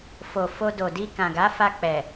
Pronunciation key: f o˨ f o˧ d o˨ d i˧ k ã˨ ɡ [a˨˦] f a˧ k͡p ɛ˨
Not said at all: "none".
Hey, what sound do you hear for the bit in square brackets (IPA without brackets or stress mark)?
a˨˦